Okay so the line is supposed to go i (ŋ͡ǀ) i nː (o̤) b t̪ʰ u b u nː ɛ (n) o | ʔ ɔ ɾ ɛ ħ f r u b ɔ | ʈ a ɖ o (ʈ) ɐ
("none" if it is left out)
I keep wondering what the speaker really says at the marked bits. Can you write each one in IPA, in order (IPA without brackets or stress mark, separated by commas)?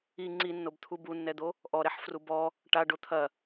ŋ͡ǀ, o, d̪, t̪ʰ